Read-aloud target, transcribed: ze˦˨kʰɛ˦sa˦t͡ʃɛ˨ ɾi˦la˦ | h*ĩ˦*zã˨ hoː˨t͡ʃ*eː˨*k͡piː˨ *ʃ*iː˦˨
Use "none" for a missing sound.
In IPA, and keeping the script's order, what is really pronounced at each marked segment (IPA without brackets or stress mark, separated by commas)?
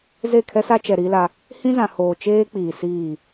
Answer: ĩ˦, eː˦, s